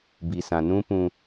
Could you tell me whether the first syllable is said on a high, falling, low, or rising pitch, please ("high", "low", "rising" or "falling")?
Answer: low